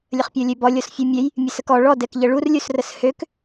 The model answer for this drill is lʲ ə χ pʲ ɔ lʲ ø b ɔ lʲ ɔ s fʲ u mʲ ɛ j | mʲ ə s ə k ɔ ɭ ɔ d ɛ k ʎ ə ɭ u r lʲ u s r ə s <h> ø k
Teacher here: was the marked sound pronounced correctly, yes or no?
yes